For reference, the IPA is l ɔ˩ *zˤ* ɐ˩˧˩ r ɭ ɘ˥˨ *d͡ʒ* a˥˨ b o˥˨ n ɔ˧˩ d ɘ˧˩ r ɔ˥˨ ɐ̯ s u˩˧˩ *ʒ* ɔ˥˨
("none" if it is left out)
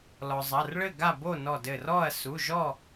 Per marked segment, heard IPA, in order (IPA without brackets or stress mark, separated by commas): zˤ, ɡ, ʒ